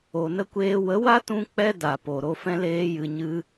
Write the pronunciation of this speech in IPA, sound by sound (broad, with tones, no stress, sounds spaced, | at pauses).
o˨ n ə˦ kʷ eː˧ w ə˨˦ w a˦ t ũ˦ k͡p ɛ˦ d a˨ p o˨ ɾ o˧ f ɛ̃˦ l eː˦ j ɨ˧ ɲ ɨ˦